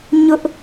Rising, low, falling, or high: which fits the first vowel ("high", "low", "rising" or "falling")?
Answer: high